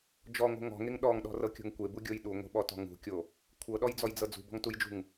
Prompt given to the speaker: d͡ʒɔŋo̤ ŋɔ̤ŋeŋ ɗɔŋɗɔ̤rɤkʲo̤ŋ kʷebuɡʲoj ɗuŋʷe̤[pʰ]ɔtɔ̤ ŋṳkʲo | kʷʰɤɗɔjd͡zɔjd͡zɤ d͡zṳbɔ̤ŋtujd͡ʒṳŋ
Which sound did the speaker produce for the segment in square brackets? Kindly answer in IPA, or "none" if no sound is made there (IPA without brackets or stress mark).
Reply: ɓ